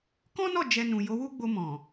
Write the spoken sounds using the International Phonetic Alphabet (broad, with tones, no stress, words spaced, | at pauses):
kɔ̃˦nɔ˦˨ d͡ʒɛ˧nũ˨ jo˨˦wu˦ɡ͡bo˧mɔ̃˨